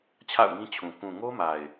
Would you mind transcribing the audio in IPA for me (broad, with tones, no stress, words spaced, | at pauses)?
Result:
t͡ɕʰa̰˦˨ʊ̯ŋĩ˦t͡ɕʰũ˨ kũ˨ŋo˦ma˨ɪ̯